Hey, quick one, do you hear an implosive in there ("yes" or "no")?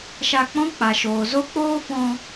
no